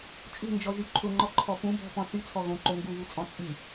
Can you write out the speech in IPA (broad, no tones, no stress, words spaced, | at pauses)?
t͡ʃʼṳnd͡ʒɔʒy ǃʰʊŋ͡ǃɔǃʰɔ pũ bɔ̤pɔ̃ θyt͡sʰɔ ɣõǃo ŋɡuβut͡sʼɔ̃ t͡sʼy